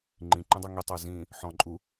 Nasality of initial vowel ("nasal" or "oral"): nasal